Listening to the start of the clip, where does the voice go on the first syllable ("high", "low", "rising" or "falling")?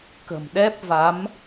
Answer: low